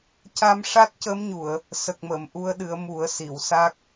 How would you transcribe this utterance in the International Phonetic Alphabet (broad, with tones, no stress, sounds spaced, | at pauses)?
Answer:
c a˧ m ʂ a˦˥ t̚ c ə˧˥ m ɲ u˨˩˨ ə̯ | s ə˨˩ k̚ m ə˨˩˨ m ʔ u˧ ə̯ ɗ ɨ˨˩˦ ə̯ m u˨˩˦ ə̯ s i˨˩˨ w s a˦˥ k̚